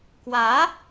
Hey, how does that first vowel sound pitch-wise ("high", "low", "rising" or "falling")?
rising